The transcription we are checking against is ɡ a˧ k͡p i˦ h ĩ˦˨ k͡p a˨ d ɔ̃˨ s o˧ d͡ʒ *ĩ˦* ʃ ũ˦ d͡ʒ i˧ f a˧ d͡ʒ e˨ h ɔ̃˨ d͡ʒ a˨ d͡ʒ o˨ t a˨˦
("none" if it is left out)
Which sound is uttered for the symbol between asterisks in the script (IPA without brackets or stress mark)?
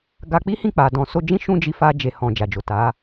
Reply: ĩ˦